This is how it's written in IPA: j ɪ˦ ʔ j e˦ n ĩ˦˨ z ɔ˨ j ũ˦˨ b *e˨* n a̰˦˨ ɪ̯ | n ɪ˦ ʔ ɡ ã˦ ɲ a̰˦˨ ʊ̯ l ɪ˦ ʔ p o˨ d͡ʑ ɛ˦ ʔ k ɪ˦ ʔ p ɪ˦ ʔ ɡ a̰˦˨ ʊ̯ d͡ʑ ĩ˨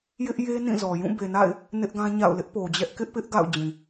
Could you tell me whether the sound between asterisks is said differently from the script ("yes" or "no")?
no